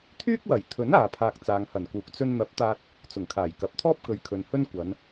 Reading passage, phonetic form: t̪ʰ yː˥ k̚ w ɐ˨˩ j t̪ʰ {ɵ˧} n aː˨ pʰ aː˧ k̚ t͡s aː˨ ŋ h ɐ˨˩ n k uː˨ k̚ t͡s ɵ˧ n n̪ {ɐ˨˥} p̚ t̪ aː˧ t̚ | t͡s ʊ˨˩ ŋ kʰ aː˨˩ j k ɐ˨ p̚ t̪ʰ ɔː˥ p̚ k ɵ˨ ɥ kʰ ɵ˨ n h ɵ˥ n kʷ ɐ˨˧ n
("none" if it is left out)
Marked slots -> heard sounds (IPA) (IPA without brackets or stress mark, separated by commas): ɵ˨˥, ɐ˨˥